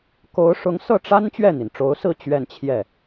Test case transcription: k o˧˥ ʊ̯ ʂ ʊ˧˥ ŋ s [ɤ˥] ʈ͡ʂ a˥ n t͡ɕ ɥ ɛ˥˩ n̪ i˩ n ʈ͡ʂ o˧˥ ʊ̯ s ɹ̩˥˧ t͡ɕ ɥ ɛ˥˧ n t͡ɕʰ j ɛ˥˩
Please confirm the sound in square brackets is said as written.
no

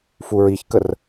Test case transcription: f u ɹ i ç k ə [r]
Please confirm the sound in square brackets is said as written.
yes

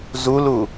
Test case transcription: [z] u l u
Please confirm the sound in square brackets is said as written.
yes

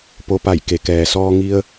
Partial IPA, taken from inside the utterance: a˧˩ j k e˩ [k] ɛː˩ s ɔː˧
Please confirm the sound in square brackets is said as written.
yes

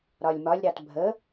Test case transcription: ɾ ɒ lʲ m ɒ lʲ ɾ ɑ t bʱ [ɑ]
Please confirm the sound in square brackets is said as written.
no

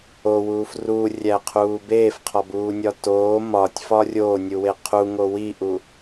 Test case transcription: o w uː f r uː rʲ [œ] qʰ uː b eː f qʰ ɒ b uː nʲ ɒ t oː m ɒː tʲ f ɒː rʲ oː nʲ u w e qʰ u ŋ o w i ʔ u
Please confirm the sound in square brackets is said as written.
no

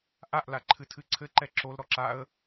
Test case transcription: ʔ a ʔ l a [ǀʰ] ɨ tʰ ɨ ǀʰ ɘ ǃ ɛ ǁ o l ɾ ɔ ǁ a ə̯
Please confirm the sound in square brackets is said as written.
no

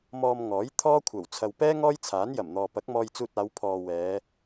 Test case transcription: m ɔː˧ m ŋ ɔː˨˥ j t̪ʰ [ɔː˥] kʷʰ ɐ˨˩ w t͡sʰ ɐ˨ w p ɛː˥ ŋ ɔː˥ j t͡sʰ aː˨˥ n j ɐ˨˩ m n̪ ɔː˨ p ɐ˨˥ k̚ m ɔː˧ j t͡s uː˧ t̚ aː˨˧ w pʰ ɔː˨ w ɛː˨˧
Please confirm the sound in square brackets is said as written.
yes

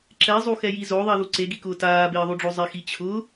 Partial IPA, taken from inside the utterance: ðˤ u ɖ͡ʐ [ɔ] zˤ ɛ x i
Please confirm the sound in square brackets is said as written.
no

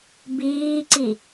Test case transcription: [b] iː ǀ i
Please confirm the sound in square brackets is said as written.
yes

